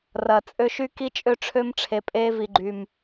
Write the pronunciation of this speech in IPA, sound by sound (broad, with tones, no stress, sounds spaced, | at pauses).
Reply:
r ɐ˨ t͡sʼ ø˦ ʃ y˦ k i˦ t͡ʃʼ ø˦ ʈ͡ʂʰ ø˦ m ʈ͡ʂʰ e˨ pʼ e˦ v i˨ ɡ͡ǃ y˨ m